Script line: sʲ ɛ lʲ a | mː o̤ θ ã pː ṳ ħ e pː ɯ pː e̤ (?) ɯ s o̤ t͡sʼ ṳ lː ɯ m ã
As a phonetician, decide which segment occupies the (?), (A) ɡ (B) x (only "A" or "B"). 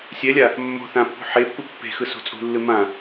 B